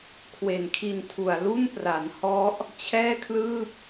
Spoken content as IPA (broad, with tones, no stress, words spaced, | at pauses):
kʰwe˨˩nkʰi˧ntʰu˨˩a̯ lu˥˩npra˩˦nhɔ˦˥ʔ | t͡ɕʰɛː˥˩kʰlɯː˥˩p̚